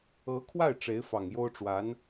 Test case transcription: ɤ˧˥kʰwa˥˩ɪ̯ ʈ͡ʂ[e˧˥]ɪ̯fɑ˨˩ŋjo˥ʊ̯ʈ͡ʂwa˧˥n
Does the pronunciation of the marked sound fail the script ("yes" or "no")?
no